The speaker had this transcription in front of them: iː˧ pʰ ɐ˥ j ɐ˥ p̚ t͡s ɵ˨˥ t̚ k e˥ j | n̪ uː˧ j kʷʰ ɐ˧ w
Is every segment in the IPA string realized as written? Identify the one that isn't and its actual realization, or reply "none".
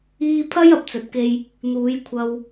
uː˧ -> uː˨˥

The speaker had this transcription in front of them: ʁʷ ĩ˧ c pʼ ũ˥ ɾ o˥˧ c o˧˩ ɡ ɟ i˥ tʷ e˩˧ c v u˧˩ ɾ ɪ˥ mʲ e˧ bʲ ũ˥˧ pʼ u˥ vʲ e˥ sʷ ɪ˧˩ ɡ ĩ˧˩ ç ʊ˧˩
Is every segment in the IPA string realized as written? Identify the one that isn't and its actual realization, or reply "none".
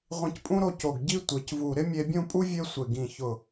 none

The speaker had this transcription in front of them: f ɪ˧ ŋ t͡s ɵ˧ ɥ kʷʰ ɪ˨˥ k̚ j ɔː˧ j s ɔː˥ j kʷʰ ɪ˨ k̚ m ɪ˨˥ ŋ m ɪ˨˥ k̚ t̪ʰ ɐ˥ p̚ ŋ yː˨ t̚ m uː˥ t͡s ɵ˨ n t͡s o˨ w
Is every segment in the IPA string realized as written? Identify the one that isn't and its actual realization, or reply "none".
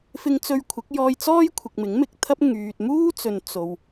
s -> t͡s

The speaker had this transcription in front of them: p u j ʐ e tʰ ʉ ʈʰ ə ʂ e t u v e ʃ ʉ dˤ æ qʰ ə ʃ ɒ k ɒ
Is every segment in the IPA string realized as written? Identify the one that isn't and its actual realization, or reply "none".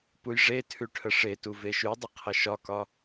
æ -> ə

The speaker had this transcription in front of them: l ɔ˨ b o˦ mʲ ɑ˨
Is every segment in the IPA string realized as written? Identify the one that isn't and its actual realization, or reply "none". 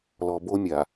ɑ˨ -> a˨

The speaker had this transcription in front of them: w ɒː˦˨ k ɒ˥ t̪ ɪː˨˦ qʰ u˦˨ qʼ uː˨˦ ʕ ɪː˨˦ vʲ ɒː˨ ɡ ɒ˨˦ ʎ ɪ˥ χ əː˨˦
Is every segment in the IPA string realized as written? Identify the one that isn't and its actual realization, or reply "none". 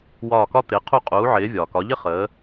ɡ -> k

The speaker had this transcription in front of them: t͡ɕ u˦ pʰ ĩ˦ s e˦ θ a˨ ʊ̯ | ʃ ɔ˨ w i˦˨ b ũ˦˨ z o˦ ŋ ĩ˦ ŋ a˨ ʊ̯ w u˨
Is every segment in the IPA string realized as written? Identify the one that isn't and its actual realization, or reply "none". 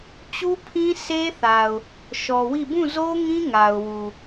none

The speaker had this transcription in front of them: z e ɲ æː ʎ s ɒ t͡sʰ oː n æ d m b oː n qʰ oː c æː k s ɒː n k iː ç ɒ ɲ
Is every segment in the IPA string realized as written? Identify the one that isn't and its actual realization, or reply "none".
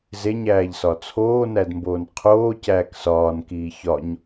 none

